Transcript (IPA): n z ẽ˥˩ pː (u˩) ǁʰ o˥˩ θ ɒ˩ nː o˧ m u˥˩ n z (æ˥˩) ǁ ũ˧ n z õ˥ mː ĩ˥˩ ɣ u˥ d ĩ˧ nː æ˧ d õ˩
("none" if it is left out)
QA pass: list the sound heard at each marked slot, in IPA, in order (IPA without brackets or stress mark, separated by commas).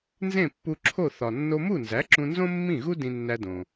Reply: u˧, æ˩˥